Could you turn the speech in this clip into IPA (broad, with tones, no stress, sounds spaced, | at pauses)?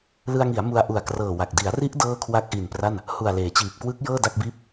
l ɯ˧ a̯ ŋ i˩˦ a̯ m u˧ a̯ ʔ u˨˩ a̯ k r ɤː˨˩ w a˨˩ k̚ d i˩˦ a̯ r i˦˥ ʔ d ɤː˥˩ kʰ w a˦˥ k̚ ʔ i˨˩ n p r a˥˩ n | h u˨˩ a̯ l eː˩˦ t͡ɕ iː˨˩ p̚ k w ɯ˦˥ k̚ j ɤː˥˩ d a˥˩ k̚ b iː˥˩ p̚